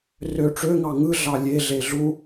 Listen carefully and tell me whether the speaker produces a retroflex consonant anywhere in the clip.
yes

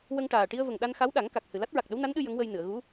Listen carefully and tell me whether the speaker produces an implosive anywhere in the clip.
yes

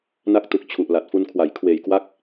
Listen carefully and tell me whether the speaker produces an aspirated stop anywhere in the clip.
yes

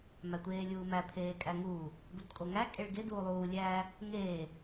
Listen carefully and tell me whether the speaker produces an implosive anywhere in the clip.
no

